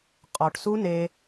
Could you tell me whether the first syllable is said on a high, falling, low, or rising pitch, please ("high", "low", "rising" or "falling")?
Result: low